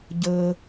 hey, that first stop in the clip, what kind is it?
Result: plain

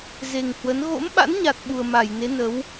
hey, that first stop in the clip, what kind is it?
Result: implosive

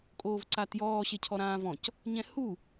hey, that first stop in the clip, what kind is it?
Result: ejective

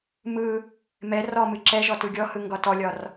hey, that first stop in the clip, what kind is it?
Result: click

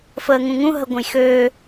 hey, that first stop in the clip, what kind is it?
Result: plain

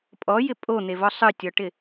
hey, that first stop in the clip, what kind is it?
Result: ejective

